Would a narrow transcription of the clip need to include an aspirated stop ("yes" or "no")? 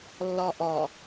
no